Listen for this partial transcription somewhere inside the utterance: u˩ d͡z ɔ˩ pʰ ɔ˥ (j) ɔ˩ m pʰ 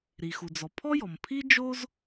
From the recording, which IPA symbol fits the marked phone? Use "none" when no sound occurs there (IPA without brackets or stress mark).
j